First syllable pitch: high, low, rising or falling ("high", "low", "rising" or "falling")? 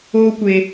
high